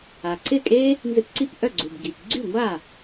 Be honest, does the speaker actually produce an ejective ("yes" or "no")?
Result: yes